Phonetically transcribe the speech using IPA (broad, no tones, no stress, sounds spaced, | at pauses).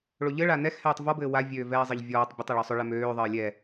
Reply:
ɭ o ʎ ɘ ɭ a n ɛ x h ɛː tˤ v ɔ b ɘː w a vʲ øː v ɛː zˤ ɘ ʎ vʲ ɔː tˤ bʲ ɘ tˤ ɛ ɭ ɔ sˤ ʏ ɭ ɛ m øː ðˤ ɘː lʲ ɛ